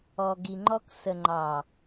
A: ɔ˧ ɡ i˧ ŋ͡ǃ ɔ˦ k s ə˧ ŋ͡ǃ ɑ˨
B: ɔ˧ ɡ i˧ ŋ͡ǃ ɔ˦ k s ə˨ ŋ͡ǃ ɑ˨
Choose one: B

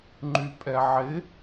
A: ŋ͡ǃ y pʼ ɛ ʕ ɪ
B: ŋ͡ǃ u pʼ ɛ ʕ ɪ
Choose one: A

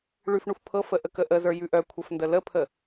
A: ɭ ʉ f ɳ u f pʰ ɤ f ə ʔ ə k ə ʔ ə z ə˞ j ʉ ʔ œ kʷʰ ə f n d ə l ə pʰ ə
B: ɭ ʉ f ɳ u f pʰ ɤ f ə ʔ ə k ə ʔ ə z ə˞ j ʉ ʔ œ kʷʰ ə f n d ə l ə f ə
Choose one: A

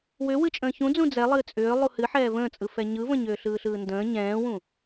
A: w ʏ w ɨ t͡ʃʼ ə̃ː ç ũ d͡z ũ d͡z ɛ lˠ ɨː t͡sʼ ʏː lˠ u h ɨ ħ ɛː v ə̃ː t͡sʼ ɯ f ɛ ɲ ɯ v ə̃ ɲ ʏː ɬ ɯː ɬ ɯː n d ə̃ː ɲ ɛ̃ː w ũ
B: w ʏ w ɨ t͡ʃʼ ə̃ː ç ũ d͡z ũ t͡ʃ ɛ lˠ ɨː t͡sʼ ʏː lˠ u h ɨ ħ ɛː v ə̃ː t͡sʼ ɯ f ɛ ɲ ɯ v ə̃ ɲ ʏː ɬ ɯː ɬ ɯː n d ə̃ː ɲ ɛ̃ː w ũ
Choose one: A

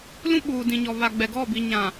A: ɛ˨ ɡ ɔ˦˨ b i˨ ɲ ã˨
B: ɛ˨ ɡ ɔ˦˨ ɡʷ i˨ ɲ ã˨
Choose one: A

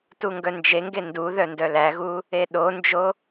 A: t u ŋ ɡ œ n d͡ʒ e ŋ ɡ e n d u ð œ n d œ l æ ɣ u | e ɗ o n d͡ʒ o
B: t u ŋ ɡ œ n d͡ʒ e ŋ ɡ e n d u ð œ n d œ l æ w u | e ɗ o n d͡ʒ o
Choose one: A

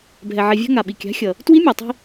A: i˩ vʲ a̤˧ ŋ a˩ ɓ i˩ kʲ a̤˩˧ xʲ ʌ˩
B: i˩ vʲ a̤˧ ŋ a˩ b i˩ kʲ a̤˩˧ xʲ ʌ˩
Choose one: A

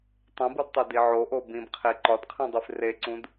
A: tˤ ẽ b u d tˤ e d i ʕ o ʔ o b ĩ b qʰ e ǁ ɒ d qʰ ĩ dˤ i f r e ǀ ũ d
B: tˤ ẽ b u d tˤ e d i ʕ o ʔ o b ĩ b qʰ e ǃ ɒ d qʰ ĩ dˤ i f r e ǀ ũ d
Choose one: B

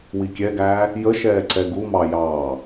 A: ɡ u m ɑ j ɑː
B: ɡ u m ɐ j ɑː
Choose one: A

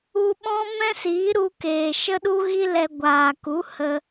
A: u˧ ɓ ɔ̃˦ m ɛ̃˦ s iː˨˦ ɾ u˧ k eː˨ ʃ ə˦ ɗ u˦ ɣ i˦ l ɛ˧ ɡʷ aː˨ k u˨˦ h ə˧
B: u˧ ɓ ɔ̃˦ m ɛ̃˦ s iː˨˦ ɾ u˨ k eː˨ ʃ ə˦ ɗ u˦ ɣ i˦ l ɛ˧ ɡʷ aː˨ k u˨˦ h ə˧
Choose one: A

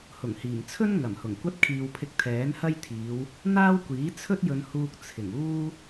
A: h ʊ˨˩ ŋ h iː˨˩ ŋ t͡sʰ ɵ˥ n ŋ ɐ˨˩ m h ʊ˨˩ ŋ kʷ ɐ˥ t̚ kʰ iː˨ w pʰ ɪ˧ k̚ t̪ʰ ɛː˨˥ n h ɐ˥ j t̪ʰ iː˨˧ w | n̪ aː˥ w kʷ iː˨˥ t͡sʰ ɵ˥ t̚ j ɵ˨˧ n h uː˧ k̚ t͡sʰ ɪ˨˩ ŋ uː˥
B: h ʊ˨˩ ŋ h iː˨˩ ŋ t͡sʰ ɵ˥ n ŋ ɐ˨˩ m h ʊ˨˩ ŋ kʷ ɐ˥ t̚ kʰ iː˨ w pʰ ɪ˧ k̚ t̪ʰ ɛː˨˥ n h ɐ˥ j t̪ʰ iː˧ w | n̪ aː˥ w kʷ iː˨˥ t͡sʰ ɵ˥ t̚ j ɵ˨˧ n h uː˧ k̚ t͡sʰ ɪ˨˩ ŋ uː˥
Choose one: A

